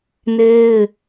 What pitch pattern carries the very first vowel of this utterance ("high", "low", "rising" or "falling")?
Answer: high